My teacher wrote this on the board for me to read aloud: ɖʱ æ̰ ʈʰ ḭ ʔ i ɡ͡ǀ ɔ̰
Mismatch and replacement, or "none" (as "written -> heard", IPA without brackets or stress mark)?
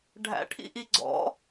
none